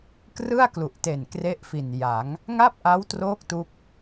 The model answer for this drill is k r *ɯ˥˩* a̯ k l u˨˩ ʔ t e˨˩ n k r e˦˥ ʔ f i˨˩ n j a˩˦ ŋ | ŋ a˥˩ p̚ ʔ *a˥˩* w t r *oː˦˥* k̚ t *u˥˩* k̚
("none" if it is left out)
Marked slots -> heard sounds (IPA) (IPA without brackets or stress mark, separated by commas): ɯ˥˩, a˦˥, oː˦˥, u˦˥